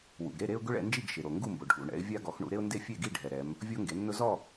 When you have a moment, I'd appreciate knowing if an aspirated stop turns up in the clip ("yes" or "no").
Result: no